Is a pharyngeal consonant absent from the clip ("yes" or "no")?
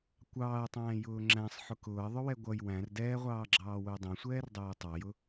no